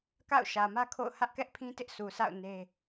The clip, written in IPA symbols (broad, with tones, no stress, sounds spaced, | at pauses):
k a̰˦˨ ʊ̯ ʃ ä˨ m ä˦ kʰ o̰˦˨ ʊ̯ h ä˦ ʔ k ɛ˦ ʔ pʰ ĩ˦ t ɪ˦ ʔ s u˨ s a̰˦˨ ʊ̯ n e˦